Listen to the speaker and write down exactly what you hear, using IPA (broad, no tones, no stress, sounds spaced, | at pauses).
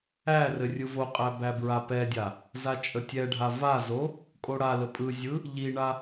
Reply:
æ r ɘ rʲ ɯ v o qʼ æ b æ b ɹ a p ɛ dʲ a | z a t͡ʃʼ ə tʲ ɛ ɖʱ a v a z o | kʼ o ɽ a l ə pʼ ɯ zʲ ɯ | ʎ i ɳ a